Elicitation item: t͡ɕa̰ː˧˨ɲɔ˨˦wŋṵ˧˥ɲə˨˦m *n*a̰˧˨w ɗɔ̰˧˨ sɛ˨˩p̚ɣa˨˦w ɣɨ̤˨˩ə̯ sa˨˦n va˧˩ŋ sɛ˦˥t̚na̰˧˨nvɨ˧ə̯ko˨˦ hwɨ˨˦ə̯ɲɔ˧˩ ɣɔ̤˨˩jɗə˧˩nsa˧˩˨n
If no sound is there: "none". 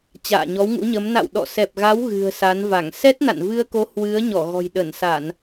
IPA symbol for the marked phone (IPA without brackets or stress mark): n